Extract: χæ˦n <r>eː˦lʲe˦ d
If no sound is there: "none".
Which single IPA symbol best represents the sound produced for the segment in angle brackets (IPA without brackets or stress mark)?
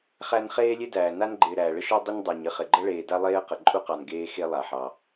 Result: χ